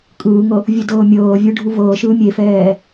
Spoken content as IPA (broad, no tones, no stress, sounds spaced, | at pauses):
kʼ ɯː ŋ ɤ | vʲ u d ɤː mʲ ɤː vʲ ɯ ɖʱ u v ɤː ʃ ɯː mʲ e f ɛː